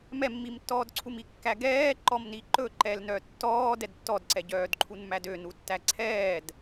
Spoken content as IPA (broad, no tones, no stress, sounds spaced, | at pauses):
m ɛ mː i m tː ɔː d ǀʰ u m i kː æ ɡ ɛː ǃ ɔ m n i ǃ ɵ ǃ ɛ l n œ tː ɔː d ɛ d tː ɔ d ǀ ɛ ɟ œː d ǃʰ u n m æ d ø n u tː æ ǀʰ ɛː d